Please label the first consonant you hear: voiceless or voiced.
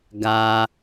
voiced